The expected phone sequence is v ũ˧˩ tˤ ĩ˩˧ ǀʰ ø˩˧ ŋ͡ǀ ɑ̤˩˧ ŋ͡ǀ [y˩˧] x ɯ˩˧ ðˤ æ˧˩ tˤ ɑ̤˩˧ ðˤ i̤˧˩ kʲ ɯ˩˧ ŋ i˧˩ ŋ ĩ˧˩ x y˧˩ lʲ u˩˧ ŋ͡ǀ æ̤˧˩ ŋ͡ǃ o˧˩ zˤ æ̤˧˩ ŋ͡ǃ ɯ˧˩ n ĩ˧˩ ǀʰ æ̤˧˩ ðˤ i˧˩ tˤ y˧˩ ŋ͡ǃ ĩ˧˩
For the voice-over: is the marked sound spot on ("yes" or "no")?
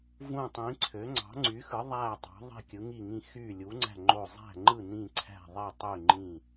yes